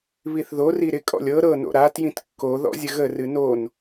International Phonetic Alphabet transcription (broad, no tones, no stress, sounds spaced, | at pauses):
β i θ ð o r i ɾ ɪ kʼ ɔ̰ lʲ ɤ ɾ ɤ n o̰ ɾ a t j ĩ t kː o ð ɔ̰ zʲ ə ɣ ə r ɨ n o n